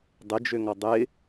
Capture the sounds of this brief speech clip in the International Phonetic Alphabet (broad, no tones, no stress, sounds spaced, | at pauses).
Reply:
dˤ ɪ d͡ʒ ø ŋ ɔ dˤ ɪ